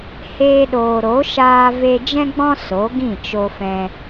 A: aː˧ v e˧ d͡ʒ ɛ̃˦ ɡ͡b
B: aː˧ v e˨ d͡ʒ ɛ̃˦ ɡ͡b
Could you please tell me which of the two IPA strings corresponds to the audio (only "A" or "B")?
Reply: A